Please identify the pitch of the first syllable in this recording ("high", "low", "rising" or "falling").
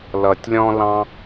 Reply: low